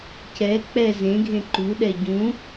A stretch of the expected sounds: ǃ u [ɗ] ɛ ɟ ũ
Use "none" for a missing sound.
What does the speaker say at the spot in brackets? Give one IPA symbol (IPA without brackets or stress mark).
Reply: ɗ